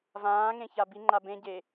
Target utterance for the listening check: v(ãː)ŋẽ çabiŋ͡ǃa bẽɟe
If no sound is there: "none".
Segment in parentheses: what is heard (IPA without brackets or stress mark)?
ãː